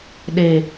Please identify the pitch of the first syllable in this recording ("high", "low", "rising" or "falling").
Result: low